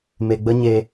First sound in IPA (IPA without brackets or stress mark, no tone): m